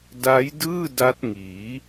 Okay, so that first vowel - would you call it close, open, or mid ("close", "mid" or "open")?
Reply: open